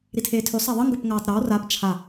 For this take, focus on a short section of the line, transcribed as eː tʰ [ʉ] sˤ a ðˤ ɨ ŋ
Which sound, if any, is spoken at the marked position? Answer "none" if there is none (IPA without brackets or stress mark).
ʉ